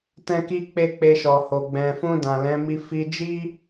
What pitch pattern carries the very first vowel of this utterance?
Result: high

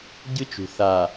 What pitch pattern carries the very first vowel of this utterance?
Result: high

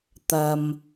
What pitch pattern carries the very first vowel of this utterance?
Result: low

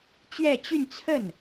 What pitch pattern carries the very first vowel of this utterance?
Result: falling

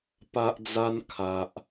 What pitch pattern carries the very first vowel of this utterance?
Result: high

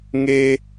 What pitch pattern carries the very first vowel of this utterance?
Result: high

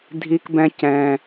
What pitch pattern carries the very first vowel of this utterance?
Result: high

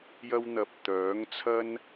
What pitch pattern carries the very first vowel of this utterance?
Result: high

